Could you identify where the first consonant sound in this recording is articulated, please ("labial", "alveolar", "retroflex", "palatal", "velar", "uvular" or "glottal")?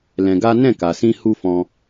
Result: alveolar